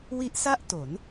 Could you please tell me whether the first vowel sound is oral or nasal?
oral